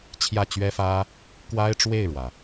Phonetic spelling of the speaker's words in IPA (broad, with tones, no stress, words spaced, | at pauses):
t͡ɕʰjä˥˩t͡ɕɥɛ˥fä˥ | kwa˥ɪ̯ʈ͡ʂwe˥˩ɪ̯ɻwä˩